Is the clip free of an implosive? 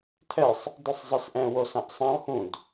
yes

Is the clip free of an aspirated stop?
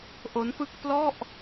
yes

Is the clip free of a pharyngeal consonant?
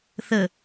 yes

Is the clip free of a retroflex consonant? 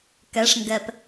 no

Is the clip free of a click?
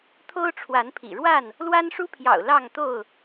yes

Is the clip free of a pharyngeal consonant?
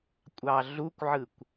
no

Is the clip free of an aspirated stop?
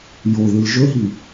yes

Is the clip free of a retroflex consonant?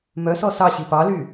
yes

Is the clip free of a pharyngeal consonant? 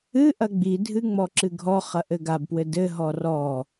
yes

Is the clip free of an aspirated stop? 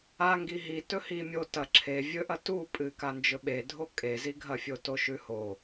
no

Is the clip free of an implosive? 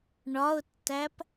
yes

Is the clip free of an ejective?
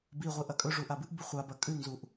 no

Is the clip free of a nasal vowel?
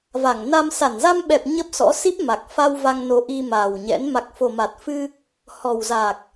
yes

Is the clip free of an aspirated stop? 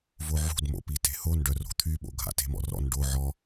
no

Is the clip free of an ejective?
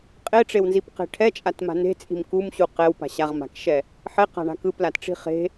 no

